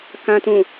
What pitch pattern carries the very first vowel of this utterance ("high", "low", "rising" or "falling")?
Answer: low